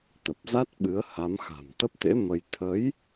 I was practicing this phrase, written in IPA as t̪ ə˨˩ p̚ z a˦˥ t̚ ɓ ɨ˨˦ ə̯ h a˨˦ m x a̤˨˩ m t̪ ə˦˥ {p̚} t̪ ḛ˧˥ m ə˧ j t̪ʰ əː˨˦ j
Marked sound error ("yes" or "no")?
no